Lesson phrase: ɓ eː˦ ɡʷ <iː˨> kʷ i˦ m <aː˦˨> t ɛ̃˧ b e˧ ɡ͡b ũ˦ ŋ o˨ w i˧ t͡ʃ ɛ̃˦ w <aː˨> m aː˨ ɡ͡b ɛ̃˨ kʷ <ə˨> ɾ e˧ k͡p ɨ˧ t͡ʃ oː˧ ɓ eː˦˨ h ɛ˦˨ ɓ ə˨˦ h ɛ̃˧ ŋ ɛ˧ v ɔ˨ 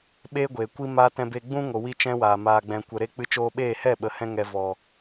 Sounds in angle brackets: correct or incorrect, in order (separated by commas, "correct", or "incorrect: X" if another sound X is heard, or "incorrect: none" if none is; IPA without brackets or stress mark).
incorrect: eː˨, incorrect: aː˦, correct, correct